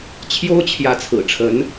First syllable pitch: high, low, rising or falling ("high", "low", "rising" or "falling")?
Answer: high